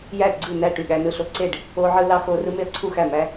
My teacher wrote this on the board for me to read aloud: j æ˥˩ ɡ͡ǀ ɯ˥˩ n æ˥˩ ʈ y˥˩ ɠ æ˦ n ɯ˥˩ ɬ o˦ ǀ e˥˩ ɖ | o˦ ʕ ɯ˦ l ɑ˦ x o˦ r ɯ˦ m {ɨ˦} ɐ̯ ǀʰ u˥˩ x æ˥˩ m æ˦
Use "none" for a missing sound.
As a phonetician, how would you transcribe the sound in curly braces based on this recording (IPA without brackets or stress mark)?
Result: e˦